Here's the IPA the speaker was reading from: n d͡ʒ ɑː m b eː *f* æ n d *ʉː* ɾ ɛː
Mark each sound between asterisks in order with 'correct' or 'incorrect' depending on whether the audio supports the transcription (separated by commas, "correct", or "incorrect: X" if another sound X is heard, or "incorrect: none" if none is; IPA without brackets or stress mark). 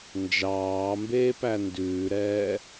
incorrect: p, correct